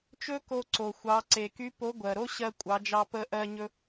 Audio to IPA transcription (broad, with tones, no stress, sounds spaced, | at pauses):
t͡ʃ ɵ˥ k o˧ ǀ o˩ xʷ ɑ˩˧ ǀ e˩ k y˧˥ p o˧˥ ɡʷ ɜ˩ ɾ o˥ ɕ ɜ˧ kʷʼ ɑ˩˧ d͡ʒ ɑ˧ p ə˧ ʔ ɜ˧ ɲ ɵ˧